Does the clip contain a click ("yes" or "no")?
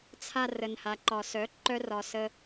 yes